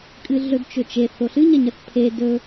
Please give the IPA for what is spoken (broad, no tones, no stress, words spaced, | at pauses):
kʼɨɮɵdt͡ʃɵt͡ʃe θoɬɨɲɐɲɐθ pʰe dɵ